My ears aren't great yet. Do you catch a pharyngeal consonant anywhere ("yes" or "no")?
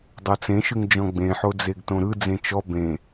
yes